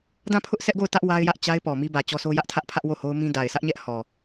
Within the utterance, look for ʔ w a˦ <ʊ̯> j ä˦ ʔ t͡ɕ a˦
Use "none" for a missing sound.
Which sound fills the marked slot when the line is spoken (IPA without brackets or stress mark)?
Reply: ɪ̯